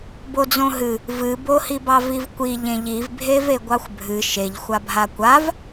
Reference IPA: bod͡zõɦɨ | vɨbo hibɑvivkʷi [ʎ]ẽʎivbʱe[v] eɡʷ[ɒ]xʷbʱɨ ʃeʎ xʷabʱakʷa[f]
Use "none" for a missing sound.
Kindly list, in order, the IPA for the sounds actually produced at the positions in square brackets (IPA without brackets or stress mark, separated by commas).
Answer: ʎ, v, ɑ, v